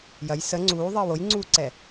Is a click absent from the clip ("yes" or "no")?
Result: no